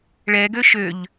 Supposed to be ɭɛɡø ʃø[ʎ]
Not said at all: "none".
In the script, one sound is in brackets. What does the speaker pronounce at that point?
ʎ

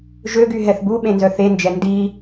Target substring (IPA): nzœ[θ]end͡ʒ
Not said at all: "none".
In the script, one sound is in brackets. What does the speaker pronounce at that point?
θ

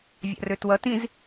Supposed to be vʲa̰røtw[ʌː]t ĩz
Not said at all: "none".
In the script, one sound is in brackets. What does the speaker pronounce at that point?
ʌ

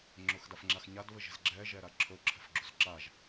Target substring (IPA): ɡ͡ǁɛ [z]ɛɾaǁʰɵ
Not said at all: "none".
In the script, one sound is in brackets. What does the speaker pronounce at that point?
ʒ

